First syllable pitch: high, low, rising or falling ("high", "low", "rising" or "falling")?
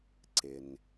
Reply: low